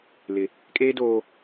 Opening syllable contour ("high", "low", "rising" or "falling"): high